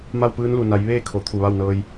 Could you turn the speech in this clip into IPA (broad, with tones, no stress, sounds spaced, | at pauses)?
m a˥˨ w p ɯː˧˥ n l u˧˩ n a˩˧ j ʋ eː˥˨ kʰ o˩ t̪ʰ u˧˩ ʋ a˥˨ w n ɤː˧ j